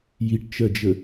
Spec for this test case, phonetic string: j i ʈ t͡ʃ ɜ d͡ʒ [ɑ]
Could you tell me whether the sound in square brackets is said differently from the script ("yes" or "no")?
yes